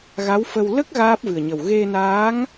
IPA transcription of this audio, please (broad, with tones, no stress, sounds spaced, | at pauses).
ɣ a˧˥ w f ə˧ w l ə˦˥ k̚ ɣ aː˦˥ p̚ v ɨ˨˩ ə̯ ɲ ə˨˩ w ɣ e˧ n aː˧˥ ŋ